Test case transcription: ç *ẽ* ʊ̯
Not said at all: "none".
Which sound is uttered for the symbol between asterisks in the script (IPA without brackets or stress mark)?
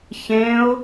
ẽ